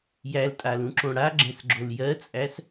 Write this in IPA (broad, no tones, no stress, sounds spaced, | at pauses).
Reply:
j æ l tʼ a l ũ ǁ õ ɽ a ɡ͡ǁ ɛ̃ s ɡ͡ǁ o l j ɜ t͡sʼ æ s